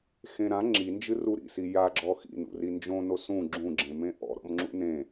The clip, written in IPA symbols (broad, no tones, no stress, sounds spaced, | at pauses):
x ẽ ɾ ã ŋ͡ǁ i n d͡ʒ ɨ r u ɾ ḭ s i j a ɡ͡ǁ ɔ x ḭ n ṵ r i n d͡ʒ õ n o s ũ ɡ͡ǁ ũ ɡ͡ǁ ẽ m ẽ ʔ ɔ̰ ɾ ɔ̰ m ŋ͡ǁ ṵ n ẽ